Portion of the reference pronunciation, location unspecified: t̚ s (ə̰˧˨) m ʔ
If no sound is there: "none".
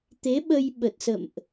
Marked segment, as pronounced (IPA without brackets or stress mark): ə̰˧˨